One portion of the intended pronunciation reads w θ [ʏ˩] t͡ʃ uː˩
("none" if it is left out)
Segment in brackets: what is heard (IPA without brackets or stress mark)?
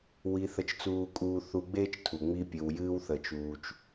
ə˩